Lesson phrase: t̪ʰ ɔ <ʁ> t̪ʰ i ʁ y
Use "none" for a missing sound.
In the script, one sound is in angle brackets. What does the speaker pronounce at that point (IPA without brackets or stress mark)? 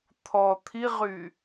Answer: none